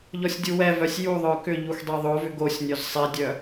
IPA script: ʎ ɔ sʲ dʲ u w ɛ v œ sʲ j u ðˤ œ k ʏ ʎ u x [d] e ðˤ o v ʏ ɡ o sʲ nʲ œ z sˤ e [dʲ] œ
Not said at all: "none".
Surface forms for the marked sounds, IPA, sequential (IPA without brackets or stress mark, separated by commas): dˤ, dʲ